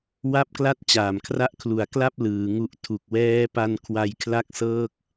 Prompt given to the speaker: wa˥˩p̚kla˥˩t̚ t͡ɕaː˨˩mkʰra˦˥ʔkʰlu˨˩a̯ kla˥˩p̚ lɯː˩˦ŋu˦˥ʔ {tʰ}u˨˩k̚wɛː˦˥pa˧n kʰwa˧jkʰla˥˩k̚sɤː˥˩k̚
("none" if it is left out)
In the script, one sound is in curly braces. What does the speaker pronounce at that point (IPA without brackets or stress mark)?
tʰ